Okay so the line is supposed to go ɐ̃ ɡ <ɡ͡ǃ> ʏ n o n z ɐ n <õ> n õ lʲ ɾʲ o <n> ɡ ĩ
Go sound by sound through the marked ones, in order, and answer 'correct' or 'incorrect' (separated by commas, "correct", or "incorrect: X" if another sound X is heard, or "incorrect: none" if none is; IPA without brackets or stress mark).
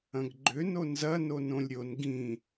correct, incorrect: o, correct